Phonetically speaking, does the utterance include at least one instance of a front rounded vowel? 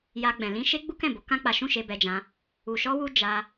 no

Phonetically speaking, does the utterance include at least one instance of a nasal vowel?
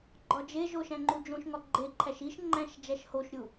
yes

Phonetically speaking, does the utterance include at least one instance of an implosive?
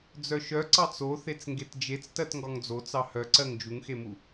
no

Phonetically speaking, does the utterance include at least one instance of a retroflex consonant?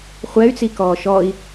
no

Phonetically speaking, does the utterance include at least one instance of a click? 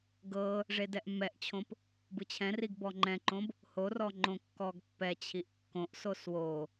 yes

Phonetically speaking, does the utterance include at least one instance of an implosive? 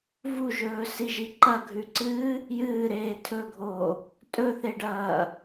no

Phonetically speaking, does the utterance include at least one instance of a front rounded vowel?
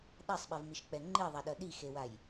no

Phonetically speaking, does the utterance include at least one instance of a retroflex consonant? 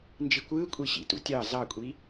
no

